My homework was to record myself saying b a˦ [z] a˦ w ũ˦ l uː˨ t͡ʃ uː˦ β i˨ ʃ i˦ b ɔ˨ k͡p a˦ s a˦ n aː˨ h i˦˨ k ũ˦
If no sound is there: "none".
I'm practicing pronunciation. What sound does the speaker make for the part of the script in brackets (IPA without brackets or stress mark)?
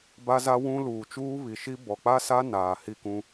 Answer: z